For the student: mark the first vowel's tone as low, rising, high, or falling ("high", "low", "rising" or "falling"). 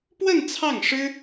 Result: falling